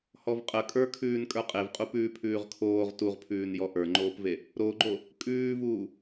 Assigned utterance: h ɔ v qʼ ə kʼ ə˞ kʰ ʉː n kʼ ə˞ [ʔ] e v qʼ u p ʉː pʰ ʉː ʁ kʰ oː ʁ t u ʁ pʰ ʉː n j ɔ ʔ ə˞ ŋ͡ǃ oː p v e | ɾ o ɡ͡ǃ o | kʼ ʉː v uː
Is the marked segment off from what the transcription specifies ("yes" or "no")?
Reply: yes